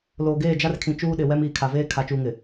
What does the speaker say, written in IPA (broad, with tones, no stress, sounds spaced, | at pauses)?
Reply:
l oː˨ ɡ eː˦˨ d͡ʒ a˦ r kʰ ĩ˨ t͡ʃ uː˦ ɗ ɪ˨ w ɛ˦ m iː˨ kʰ a˨ v eː˦ kʰ a˨ t͡ʃ uː˨ ŋ ɪ˨